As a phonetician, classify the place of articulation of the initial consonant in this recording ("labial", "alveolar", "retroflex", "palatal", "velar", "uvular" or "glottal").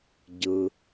palatal